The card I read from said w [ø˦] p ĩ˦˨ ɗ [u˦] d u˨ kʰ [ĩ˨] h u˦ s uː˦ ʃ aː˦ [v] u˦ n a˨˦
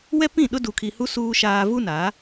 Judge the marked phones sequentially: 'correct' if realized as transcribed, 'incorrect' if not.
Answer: incorrect: ɛ˦, incorrect: ʊ˦, incorrect: i˨, correct

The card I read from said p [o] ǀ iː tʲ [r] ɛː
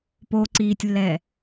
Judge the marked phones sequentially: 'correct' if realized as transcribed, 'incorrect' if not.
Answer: correct, incorrect: lː

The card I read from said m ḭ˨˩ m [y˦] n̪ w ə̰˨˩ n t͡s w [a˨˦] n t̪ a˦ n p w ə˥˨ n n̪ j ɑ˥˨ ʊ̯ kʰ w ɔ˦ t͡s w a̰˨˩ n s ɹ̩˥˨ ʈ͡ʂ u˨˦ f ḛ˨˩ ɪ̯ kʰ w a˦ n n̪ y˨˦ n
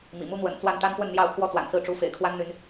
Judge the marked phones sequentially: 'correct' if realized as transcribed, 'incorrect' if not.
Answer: incorrect: u˦, incorrect: a˥˨

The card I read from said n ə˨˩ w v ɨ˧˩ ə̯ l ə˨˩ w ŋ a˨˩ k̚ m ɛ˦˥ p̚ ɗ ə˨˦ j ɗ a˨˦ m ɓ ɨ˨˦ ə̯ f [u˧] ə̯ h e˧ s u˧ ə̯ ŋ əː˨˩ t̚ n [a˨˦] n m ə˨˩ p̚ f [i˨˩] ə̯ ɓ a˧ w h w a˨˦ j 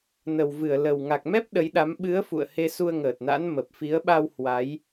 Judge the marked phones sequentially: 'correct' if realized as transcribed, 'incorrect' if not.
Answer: incorrect: ṵ˧˨, incorrect: a̰˧˥, incorrect: i˨˦

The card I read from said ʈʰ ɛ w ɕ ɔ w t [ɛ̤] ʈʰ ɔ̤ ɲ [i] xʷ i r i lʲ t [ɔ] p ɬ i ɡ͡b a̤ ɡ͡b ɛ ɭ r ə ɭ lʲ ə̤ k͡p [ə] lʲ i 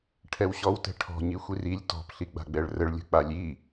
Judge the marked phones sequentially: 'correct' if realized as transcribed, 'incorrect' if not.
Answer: correct, correct, incorrect: ɔ̤, incorrect: a

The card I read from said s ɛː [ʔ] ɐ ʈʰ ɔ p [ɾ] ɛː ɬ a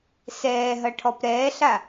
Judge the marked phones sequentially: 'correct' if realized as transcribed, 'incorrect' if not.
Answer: incorrect: ɦ, correct

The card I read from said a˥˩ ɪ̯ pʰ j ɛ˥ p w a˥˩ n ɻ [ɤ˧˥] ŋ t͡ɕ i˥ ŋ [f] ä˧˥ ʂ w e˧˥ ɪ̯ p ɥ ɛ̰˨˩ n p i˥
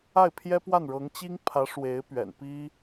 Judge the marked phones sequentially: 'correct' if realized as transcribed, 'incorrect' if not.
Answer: correct, incorrect: pʰ

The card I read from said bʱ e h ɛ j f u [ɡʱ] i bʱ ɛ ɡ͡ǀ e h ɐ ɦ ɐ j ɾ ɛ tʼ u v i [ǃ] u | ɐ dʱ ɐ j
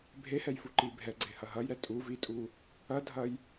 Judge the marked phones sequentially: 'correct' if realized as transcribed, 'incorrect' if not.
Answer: incorrect: ǃ, incorrect: tʼ

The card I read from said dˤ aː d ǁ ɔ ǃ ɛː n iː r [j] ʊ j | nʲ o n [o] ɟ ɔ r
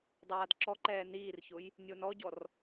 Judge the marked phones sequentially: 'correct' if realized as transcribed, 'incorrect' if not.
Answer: incorrect: ç, incorrect: ɔ

